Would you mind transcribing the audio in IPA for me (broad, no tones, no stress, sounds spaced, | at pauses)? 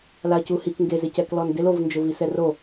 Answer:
l a ɐ̯ c u h i k ŋ ɡ e z ɪ c ɛ k l ɔ n d ɪ l o v n d͡ʒ ʊ v i s ɛ r o